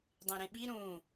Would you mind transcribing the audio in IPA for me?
dˤ ẽ ɾ ẽ ɓ i ɾ ũ

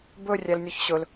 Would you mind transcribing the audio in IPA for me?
b ɵ rʲ æ l nʲ ɔ ç ɕ ɵ l

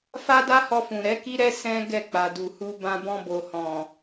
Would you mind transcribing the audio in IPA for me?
f a˦ d a˦ h ɔ˧ f ũ˨ ɾ ɛ˨˦ k i˦ ɾ ɛ˦ s ɛ̃˦ ɡ ɛ˦˨ k͡p a˨ d u˨ h u˧ b ã˧ b ɔ̃˧ b o˨ h ɔ̃˨

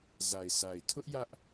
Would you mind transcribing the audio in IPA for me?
z a˨ ɪ̯ s a˨ ɪ̯ tʰ ʊ˦ ʔ j ä˦ ʔ

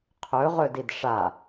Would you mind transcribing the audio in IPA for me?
qʰ ɵ ʁ ɵ d i d ʂ a

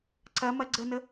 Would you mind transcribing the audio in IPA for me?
ǀ ɐ m ɐ ɡ͡ǀ ə n ə

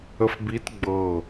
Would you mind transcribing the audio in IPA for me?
ə f b i t ɡ͡b ɤ

